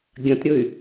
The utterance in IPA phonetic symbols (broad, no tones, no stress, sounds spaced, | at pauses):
ɡʲ ɐ̃ t ɾʲ ɵ y̯